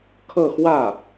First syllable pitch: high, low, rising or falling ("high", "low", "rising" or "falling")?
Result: falling